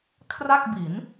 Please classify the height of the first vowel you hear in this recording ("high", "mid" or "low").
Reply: low